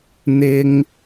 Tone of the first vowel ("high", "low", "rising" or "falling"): high